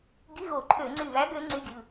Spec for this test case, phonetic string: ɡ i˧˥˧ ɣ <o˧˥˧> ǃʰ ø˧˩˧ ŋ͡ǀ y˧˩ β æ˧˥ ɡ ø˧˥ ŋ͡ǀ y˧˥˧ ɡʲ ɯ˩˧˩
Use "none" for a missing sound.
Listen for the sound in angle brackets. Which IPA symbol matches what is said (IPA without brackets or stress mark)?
o˧˩˧